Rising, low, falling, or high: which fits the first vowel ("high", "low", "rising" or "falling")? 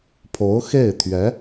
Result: rising